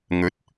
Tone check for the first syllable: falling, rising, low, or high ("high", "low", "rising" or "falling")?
rising